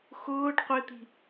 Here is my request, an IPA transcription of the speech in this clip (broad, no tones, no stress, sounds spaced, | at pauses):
x ʊː ɖ qʷ ɪ t̪ i̤